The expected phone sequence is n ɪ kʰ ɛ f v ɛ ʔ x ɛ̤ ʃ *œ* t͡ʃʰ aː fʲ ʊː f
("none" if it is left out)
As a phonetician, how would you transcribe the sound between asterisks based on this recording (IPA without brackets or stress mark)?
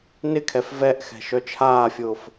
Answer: œ